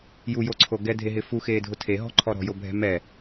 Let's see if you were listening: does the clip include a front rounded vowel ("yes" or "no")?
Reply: no